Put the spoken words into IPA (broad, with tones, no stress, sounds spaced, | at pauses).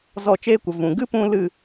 z ɔ˦˨ t͡ʃ eː˦ kʷ ə˨ v ũ˨ ɡ ɨ˦ p ũ˧ l ɨ˦˨